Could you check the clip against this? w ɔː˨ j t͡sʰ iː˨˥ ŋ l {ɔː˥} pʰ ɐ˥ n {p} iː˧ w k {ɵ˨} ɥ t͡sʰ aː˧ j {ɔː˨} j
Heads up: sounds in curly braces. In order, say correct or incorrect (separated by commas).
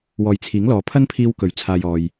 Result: incorrect, incorrect, incorrect, correct